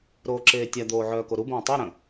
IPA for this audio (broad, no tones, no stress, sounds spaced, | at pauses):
ɾ oː ǁ eː tʲ a d̪ oː ʕ œː k o ɾ u b ə̃ː tˤ e ɾ ə̃